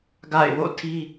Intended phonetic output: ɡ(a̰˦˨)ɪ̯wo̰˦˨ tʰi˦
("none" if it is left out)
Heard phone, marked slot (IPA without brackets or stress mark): a̰˦˨